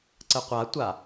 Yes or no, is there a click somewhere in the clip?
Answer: yes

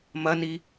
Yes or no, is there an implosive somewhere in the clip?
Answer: no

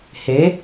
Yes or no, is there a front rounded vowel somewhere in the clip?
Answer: no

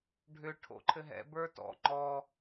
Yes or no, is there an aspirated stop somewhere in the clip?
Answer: yes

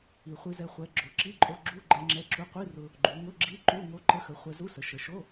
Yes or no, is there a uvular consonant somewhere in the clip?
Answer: yes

